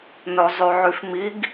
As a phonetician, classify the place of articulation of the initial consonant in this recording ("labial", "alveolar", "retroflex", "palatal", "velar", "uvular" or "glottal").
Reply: alveolar